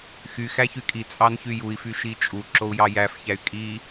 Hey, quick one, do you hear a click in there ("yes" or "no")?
yes